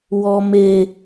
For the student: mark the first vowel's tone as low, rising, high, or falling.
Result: low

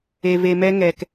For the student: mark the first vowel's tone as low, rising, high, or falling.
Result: low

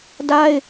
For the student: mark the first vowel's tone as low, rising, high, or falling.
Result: high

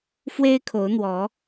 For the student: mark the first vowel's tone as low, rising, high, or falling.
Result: high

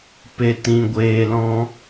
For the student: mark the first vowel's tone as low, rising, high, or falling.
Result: low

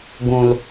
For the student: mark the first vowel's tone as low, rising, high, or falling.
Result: low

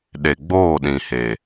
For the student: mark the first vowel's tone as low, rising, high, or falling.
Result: low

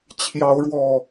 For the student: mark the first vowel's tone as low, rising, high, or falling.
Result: rising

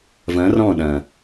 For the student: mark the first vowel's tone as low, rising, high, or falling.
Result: rising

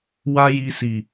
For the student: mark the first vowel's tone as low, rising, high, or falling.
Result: high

